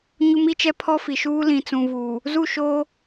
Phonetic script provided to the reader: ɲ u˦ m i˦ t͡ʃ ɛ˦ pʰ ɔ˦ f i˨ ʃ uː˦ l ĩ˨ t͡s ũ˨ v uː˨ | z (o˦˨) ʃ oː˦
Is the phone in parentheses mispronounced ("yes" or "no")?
yes